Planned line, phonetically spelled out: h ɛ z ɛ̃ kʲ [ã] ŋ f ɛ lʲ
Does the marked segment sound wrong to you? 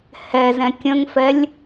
yes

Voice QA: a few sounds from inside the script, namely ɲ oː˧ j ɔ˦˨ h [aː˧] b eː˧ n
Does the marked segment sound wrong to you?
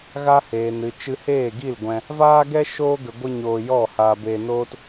no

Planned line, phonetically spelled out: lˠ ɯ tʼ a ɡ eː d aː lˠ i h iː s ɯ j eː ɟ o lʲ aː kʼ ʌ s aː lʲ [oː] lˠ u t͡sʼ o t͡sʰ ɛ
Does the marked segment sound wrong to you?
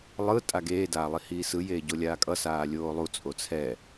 no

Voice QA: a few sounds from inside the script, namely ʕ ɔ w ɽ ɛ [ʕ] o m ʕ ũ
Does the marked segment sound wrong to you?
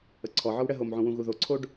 yes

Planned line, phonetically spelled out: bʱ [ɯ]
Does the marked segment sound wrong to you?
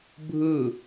no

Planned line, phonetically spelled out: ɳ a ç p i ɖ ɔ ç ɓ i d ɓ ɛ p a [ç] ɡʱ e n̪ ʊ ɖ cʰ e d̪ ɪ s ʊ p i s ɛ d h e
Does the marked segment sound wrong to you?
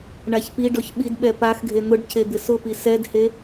yes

